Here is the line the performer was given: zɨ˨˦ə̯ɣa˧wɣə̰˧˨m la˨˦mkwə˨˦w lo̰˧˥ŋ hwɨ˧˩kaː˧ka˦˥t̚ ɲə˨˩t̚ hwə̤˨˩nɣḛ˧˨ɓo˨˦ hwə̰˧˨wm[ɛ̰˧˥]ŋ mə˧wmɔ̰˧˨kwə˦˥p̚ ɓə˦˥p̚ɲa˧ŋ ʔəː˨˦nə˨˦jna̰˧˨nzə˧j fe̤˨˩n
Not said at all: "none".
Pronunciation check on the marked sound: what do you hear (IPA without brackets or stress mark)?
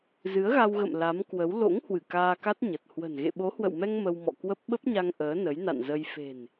ɛ˧